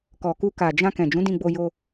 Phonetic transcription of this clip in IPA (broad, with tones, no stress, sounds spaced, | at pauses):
k ɔ˨ k u˧ k a˨ d͡ʒ ã˧ k ɛ̃˨ d͡ʒ ũ˨˦ d ĩ˧ ɡ͡b o˧ j o˧